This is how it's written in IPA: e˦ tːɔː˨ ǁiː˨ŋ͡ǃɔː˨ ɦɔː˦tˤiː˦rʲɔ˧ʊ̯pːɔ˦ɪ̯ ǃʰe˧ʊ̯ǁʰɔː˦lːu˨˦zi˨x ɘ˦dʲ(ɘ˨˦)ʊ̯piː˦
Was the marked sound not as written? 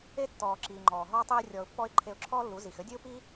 yes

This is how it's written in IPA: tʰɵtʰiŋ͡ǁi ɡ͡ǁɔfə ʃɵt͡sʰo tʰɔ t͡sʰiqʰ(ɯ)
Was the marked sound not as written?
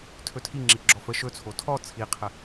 yes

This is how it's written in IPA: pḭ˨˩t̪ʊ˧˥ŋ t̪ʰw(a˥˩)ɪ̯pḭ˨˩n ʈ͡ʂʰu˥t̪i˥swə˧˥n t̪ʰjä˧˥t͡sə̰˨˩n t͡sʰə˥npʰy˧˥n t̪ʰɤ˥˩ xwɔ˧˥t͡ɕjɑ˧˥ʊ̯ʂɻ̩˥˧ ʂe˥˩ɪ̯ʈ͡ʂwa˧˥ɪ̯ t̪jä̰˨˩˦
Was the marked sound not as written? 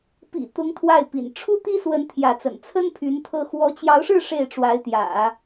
no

